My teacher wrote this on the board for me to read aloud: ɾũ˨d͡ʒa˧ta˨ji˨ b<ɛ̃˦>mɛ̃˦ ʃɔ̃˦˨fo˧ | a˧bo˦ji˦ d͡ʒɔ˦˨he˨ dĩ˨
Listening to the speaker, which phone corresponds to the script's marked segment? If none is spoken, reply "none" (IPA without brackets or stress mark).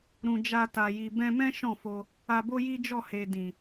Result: ɛ̃˧